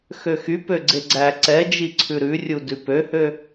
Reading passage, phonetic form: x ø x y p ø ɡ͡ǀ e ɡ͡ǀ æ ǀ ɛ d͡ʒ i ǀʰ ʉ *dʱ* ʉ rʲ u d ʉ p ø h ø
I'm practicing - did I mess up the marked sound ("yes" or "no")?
yes